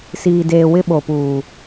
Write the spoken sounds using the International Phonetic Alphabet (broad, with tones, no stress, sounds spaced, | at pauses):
s iː˨ d eː˨ w ɪ˦ ɓ o˨ p uː˨